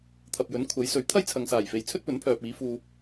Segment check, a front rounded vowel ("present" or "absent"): present